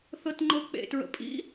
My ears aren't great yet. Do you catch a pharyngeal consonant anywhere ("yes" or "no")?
no